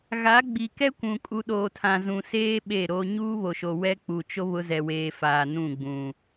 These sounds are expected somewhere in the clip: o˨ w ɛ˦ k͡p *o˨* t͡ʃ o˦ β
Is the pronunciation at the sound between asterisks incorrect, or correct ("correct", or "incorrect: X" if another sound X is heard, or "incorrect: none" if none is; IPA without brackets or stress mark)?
incorrect: u˨